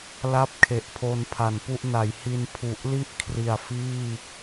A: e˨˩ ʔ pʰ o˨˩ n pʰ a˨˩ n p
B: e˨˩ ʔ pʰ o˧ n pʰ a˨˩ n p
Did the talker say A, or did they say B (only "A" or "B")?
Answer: B